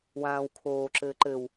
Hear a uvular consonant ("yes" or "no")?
no